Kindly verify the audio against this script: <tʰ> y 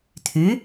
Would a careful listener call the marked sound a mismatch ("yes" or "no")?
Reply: no